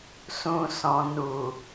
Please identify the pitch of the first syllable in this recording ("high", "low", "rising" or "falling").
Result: low